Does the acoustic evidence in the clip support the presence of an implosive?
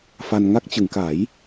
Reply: no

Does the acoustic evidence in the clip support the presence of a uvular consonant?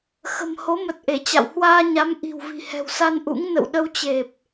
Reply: no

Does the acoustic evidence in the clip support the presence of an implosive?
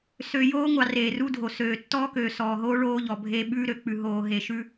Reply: yes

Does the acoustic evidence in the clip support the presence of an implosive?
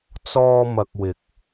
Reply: no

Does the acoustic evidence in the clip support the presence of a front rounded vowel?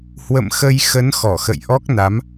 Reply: no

